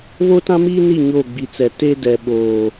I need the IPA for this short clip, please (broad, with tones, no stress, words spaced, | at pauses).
βo˦tã˦miː˦ni˦˨ ɲo˦˨ɡ͡bi˨t͡sɛ˨ te˦dɛ˨ ɓoː˨